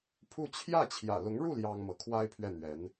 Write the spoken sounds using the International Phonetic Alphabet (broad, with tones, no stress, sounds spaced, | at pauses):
pʰ u˥˧ t͡ɕʰ j ä˥˩ t͡ɕʰ j ä̰˨˩ l ʊ˧˥ ŋ ɻ u˥˩ l j ɑ˥ ŋ m ɤ˧˥ kʰ w a˥ ɪ̯ pʰ ɥ ɛ˥˩ n̪ ɥ ɛ˧˥ n